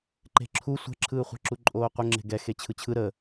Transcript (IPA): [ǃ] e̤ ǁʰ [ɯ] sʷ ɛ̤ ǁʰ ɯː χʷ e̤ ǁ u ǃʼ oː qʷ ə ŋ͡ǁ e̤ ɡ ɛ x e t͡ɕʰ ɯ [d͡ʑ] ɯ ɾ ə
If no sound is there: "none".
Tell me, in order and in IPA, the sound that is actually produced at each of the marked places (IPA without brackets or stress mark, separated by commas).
ǃ, u, t͡ɕʰ